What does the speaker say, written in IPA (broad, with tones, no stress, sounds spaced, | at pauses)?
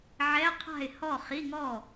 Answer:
ʕ ɛ˧˥˧ qʰ a̤˥˩ ɪ̯ h ɔ˥˩ χ i˧˥˧ ŋ ɔ˥˩